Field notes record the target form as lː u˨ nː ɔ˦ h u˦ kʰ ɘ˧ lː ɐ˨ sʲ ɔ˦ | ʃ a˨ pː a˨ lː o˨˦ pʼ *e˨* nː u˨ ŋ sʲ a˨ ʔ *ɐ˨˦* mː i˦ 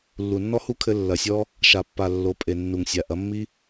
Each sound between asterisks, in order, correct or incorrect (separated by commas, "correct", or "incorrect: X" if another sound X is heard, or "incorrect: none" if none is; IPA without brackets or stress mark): correct, correct